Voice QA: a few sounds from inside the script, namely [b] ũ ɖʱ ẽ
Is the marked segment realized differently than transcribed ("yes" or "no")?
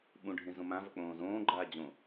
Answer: yes